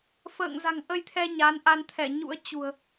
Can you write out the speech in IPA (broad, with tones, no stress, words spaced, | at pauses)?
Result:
fə̰ː˧˨ŋza̤˨˩ŋʔə˧jt̪ʰɛ˧ ɲa˨˦nʔa˧n t̪ʰɛ˧˩ɲṵ˧˥ə̯t͡ɕṳ˨˩ə̯